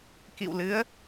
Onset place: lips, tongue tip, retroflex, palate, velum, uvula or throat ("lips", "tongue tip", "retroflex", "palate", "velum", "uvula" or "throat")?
velum